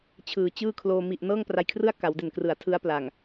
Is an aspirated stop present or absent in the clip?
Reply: present